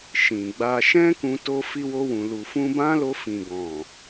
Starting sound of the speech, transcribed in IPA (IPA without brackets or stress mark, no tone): ʃ